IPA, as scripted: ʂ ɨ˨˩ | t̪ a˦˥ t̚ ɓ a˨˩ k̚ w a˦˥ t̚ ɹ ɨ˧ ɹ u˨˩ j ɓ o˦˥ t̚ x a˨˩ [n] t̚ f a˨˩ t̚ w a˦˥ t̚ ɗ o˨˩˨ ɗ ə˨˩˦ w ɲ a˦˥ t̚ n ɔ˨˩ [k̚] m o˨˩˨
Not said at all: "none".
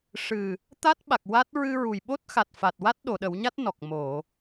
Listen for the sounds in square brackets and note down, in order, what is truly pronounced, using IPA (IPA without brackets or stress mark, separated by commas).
none, k̚